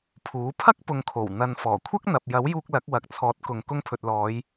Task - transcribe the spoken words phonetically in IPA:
pʰuː˨˥ pʰɐ˥k̚pʊ˨ŋkʰo˨˩w n̪ɐ˨n fɔː˨˩kʷʰɐ˥k̚n̪ɐ˨p̚ jɐ˨˥wjuː˧k̚ lɐ˨˥k̚wɐ˨k̚t͡sʰɔː˨˥t̚kʊ˨ŋ kʊ˧ŋpʰɵ˨t̚lɔː˨˧j

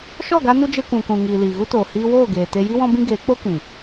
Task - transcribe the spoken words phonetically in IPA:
ʃɔ˦˨ɡa˧nu˧ d͡ʒe˧kʷũ˨kũ˨ ŋiː˨liː˨ɣu˦toː˨ hiː˧woː˦˨ɡeː˨te˧ ji˦wɔ̃˦bĩ˦ ɡeː˨˦k͡po˦ kĩ˨

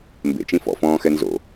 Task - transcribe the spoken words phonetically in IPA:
mbḛt͡ʃĩ fɔ̰fɔ̃ːxɛ nzo̰

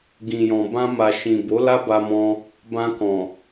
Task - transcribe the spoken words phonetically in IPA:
ɡĩ˨jɔ̃˨ bã˧ma˨ ʃĩ˨bo˨˦ la˦ba˧mɔ̃˧ | bã˧kɔ̃˨

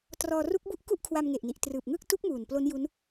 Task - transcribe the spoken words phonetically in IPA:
trɔː˧ruː˦˥k̚bu˥˩ʔ ku˥˩ʔkʰwa˧mŋe˨˩ʔni˨˩ʔ trɯː˨˩p̚ŋɯ˥˩k̚ tu˦˥k̚ muː˨˩nplo˦˥nju˦˥n

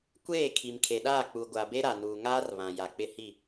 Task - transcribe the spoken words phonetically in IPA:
kʷeː˦˨ kʰi˨mkʰe˨ ɗaː˦˨ k͡pu˨ ɡʷa˨be˦ ɾa˨nuː˨ ŋaː˦r βã˨ ja˨k͡pɪ˦hi˦˨

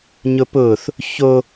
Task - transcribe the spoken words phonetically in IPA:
ɲʊpʊːθ | ço

